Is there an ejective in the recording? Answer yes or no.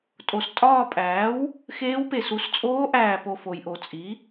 yes